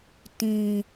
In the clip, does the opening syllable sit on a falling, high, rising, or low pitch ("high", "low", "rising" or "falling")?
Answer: low